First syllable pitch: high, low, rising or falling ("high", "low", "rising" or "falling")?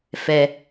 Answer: high